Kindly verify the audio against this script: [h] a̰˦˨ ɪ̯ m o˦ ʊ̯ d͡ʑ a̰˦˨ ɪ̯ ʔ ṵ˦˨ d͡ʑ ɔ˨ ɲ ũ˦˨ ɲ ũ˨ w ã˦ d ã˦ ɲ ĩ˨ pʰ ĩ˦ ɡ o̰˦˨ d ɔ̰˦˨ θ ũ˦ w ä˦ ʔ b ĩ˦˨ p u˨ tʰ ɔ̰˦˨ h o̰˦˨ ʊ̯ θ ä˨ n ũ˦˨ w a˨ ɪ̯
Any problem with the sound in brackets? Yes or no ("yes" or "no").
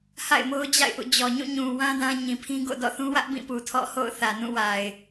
no